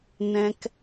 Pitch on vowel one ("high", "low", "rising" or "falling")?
high